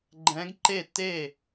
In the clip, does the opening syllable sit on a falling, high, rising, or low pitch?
rising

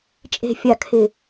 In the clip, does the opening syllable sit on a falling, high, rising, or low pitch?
low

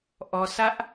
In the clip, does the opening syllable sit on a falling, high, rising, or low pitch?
low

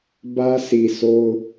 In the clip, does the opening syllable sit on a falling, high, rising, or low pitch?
high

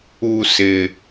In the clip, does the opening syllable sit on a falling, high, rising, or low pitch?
low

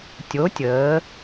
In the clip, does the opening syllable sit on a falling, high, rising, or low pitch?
rising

